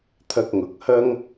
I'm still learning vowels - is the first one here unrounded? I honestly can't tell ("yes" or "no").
yes